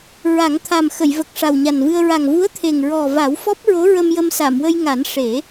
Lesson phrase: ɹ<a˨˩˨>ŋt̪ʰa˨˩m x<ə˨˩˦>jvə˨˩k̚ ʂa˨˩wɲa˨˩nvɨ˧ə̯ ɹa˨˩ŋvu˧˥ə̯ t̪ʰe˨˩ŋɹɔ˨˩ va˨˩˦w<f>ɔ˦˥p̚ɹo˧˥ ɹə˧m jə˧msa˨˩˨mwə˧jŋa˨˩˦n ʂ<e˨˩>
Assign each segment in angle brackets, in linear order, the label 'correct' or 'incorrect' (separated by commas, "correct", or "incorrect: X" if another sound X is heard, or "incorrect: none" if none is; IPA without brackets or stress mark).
incorrect: a˨˩˦, incorrect: ə˨˩˨, correct, incorrect: e˨˩˦